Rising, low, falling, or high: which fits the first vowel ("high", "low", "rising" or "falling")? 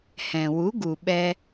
low